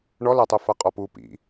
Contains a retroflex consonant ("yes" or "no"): yes